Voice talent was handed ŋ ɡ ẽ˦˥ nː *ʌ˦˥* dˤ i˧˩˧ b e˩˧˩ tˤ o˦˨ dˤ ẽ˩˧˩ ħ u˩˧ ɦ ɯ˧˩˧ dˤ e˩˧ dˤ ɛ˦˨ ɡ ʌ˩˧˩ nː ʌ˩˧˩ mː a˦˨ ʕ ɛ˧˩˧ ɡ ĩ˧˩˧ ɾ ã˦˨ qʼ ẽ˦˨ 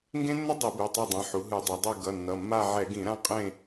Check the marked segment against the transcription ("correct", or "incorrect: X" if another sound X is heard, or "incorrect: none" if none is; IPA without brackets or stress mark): correct